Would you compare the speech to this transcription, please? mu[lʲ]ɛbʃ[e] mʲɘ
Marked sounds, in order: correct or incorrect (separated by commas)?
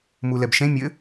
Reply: incorrect, incorrect